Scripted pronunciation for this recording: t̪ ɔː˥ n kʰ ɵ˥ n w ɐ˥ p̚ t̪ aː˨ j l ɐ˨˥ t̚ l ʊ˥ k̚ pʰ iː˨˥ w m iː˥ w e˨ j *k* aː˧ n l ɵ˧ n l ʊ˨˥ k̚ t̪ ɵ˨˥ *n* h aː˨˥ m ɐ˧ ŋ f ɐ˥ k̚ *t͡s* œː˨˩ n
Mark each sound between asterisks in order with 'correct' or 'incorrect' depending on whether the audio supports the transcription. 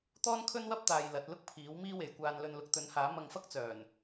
incorrect: kʷ, correct, correct

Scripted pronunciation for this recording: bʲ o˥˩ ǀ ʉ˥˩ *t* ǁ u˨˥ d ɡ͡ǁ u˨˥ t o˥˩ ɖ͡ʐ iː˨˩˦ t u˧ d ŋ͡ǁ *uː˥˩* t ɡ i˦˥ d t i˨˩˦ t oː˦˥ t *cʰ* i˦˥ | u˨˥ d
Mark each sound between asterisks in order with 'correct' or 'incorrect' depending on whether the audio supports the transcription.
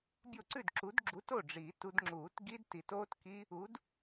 incorrect: d, incorrect: uː˨˩˦, incorrect: k

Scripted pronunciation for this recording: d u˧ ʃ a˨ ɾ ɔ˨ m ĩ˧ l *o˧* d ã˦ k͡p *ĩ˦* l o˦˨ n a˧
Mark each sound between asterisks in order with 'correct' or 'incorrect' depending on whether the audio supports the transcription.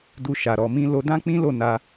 correct, correct

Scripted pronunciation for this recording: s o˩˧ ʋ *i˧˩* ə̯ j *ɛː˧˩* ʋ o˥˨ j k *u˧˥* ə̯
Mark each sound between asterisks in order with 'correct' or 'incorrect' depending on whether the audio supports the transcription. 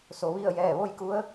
incorrect: i˥˨, correct, correct

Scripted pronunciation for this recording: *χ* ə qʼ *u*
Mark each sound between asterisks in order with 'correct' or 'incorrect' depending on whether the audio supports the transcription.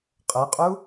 incorrect: qʼ, correct

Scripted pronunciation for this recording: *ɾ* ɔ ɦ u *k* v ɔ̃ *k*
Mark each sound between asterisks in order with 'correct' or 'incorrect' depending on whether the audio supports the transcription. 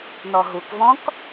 incorrect: n, correct, correct

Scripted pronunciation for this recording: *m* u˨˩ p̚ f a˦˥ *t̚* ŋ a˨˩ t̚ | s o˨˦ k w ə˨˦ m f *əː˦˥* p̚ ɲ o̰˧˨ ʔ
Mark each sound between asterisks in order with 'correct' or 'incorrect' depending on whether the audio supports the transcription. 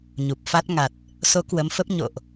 incorrect: ɲ, correct, incorrect: ə˦˥

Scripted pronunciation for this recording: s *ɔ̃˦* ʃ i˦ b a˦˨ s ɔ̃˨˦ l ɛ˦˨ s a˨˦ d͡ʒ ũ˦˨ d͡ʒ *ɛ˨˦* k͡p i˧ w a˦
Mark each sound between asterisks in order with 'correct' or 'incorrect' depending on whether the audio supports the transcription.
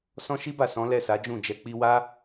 correct, correct

